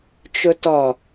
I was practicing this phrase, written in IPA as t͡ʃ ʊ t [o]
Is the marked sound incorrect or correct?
incorrect